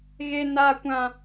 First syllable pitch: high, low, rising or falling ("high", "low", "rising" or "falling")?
high